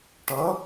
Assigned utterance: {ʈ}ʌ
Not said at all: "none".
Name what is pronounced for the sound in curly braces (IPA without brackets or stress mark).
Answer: ʈ